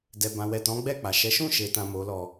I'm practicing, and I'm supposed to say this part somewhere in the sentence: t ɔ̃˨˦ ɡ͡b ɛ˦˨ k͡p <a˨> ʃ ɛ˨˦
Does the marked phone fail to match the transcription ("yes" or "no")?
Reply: no